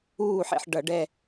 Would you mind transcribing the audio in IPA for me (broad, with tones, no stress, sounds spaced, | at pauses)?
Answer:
uː˦˨ ħ ḛ˦˨ ħ ɖ ʌ˧˩˧ ɖ ɛ˦˨